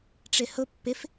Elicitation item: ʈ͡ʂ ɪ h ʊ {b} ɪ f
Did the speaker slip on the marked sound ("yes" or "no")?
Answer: yes